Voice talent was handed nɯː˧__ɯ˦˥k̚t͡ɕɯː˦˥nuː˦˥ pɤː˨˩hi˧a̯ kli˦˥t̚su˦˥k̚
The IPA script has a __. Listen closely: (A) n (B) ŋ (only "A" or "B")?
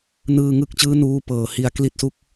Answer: B